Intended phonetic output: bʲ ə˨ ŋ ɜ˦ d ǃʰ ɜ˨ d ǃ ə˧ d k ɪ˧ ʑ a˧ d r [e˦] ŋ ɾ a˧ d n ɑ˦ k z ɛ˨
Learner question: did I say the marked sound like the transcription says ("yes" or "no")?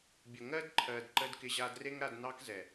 yes